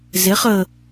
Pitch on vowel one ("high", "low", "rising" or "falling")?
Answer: rising